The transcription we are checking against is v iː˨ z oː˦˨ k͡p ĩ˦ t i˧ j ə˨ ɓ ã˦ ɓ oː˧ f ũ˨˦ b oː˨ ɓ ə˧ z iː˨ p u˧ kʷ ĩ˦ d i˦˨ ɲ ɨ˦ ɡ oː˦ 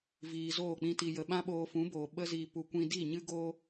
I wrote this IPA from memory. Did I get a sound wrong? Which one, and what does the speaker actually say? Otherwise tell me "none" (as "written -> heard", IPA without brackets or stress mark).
none